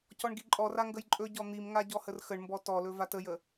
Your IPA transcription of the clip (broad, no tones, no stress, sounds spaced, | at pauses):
c ɔ ɳ ɡ i ǃʼ ɔ r a ŋ ɡ ə j ǃʼ ɵ ɟ ɔ n̪ i m ŋ a ɟ ɔ h ə r x ə ɳ m b ɔ t ɔ l ɵ v a t ə j ə